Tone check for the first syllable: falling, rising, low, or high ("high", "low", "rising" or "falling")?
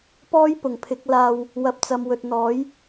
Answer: high